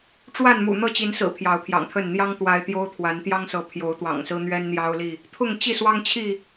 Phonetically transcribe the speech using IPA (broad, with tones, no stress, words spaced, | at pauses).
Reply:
ʈ͡ʂwa˥˨nmṵ˨˩ n̪ɤ˥˨t͡ɕi˨˦nsɹ̩˨˩ pʰjɑ˨˦ʊ̯pʰjɑ̰˨˩ŋt̪ʰə˥˨n n̪jɑ˦ŋ t̪wa˦ɪ̯ t̪jo˦ʊ̯t̪ʰwa˨˦n t̪jɑ˦ŋsɤ˨˦ pʰjo˨˦ʊ̯t̪wɑ̰˨˩ŋsɹ̩˦n̪ɥɛ˦n n̪jɑ˦ʊ̯li˥˨ | t̪ʰʊ˥˨ŋt͡ɕi˥˨swɑ˦ŋt͡ɕʰi˥˨